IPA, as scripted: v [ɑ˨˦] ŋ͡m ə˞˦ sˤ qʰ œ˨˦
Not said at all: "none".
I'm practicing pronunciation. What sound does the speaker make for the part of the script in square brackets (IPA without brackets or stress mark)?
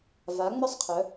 a˨˦